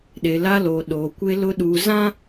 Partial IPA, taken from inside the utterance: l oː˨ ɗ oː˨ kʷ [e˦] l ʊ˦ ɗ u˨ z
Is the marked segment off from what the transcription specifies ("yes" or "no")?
no